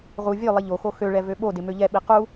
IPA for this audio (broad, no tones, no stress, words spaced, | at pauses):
ʁu vʲølˠi ʎoxo xøɭɛ vøɓodɪ møʎɛɓi qu